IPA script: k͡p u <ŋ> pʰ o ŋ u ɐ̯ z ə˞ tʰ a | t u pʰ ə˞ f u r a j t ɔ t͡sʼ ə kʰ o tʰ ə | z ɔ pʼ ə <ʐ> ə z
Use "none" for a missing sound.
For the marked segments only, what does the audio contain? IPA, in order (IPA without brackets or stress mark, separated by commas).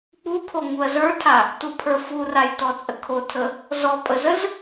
none, z